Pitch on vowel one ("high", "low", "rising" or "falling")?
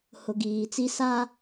low